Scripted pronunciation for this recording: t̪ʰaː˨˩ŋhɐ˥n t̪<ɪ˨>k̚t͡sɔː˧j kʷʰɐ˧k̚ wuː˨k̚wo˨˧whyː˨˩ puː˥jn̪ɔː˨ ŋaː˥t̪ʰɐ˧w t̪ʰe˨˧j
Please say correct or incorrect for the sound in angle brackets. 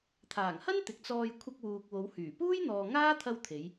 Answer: correct